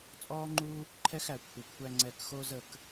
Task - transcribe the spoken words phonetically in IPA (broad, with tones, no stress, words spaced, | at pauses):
t͡sʼɔː˦ ŋ͡ǃu˦ | ǃʰɛ˦xæ˨ kʷʰə˨kʷʰæ˦ ŋ͡ǀɛ˨kxo˦zə˦˨k